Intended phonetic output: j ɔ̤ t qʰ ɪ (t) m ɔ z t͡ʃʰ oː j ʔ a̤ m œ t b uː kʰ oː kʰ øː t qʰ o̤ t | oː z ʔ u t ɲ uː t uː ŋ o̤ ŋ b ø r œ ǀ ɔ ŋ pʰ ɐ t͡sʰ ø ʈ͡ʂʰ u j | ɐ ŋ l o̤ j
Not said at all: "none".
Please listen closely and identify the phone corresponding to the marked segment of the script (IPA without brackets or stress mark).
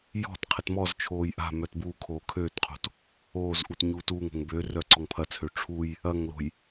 t